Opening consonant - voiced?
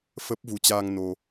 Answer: no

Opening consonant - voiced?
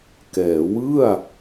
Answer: no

